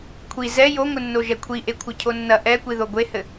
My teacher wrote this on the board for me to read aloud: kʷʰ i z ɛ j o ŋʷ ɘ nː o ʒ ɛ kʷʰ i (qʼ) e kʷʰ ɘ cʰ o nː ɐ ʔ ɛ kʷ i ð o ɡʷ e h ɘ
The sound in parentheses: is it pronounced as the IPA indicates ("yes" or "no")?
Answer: no